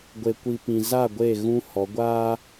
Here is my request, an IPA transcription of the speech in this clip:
ɡʷ e˨ kʷ i˨ p ĩ˨ z a˦˨ ɡʷ e˦˨ ɣ ũ˦ h ɔ˨˦ ɡʷ aː˦

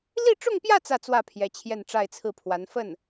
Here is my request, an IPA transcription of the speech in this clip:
l i˥˧ ʈ͡ʂ ʊ˥˧ ŋ p j ä˥˧ t͡s ä˥˧ t͡s w ä˥˩ pʰ j ɛ˧˥ t͡ɕʰ j ɛ˥˧ n ʈ͡ʂ a˥˧ ɪ̯ t͡sʰ ɹ̩˥˩ pʰ w a˧˥ n f ə˥˩ n

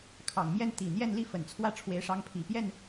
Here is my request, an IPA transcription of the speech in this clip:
kʰ ɑ˨˩ ŋ m j ɛ˥˩ n t̪ i˨˩ n̪ j ɛ˥˧ n l i˥˩ f ə˨˩ n t͡sʰ w ä˥˩ ʈ͡ʂʰ w e˧˥ ɪ̯ ʂ ɑ˧˥ ŋ pʰ i˨˩ p j ɛ˥˩ n

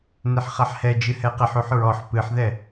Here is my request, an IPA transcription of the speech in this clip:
n e ħ χ a ħ h ɛ d͡ʒ ɨ h ɛ q e ħ u ħ ɹ ɔ ħ p ɨ ħ ð ɛ

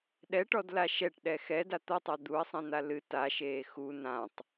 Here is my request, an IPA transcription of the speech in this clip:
ɗ ɛ ʈ ɔ d l a ʃ ɛ ʈ ɗ ɛ x ɛ d a t̪ ʌ tˤ a d̪ u ɐ̯ sˤ ĩ n̪ a l ɨ t a ʃ eː x u n ã tˤ

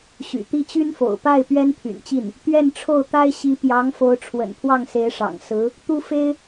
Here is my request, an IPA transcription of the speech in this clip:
ɕ y̰˨˩ t̪ i˥˩ t͡ɕ y˥ n f o̰˨˩ ʊ̯ p a˥˩ ɪ̯ p ɥ ɛ˥ n pʰ y̰˨˩ n t͡ɕ i˥˩ n | t̪ ɥ ɛ˥˧ n ʈ͡ʂʰ o˥˩ ʊ̯ t̪ a˥ ɪ̯ ɕ i˧˥ p j ɑ˧˥ ŋ f o˧˥ ʊ̯ ʈ͡ʂʰ w ə̰˨˩ n pʰ w ɑ˥˩ ŋ s e˧˥ ɪ̯ ʂ ɑ̰˨˩ ŋ s ɹ̩˧˥ | t̪ u˥ f e˥ ɪ̯

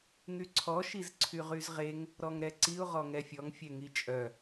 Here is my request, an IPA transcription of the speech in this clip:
ŋ y ǀʰ ɔ ʃ i z ǀʰ y ʁ y z ʁ e ŋ | ɾ ɔ ŋ ɾ ɛ ǀ i ʊ̯ ʁ ɔ ŋ ɛ fʲ ɔ ŋ fʲ ɛ ŋ i t͡ʃʼ œ

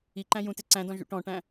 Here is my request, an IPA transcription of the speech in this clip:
i ǃ æ̃ j ũ t ɪ ǀ æ̃ d ɔ̃ ʒ ṵ ʈ ɔ̃ ʈ æ̃

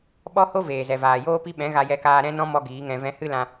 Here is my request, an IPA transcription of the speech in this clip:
ɓ ɔ˦ h o˦ v eː˨ z ɛ˨ v aː˨ j oː˦ p i˦ ɓ ɛ̃˨˦ ɣ a˧ j ɛ˧ k aː˧ ɾ ɛ̃˦ n ɔ̃˦ m ɔ˦ ɡ iː˨˦ ŋ ɛ̃˧ v ɛ̃˦ h ɨ˦ l ã˧

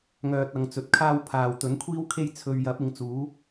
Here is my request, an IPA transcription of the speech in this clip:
ŋ œː˧ t̚ ɐ˨˧ ŋ t͡s ɵ˨ t̚ kʰ aː˥ w pʰ aː˨ w t̪ ɵ˨˥ n kʷʰ iː˥ w kʰ e˥ j t͡sʰ ɵ˧ ɥ j ɐ˨˥ p̚ ɪ˨˧ ŋ t͡s uː˨˥

